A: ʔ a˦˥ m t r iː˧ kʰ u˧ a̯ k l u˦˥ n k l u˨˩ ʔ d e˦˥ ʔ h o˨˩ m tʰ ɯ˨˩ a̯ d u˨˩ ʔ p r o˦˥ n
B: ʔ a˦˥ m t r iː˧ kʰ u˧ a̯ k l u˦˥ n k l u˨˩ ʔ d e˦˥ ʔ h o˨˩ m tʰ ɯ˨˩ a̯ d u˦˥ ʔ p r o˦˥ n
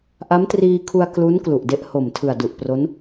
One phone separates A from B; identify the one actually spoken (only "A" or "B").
A